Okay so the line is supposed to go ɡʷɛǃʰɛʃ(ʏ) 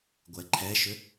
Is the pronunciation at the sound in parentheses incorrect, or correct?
correct